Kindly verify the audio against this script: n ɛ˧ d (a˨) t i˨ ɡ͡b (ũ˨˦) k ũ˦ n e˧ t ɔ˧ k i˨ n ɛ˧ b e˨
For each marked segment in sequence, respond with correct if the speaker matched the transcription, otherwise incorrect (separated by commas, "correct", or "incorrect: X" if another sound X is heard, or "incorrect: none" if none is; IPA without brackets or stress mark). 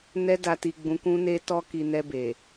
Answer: correct, correct